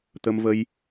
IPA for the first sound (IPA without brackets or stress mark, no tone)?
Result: t̪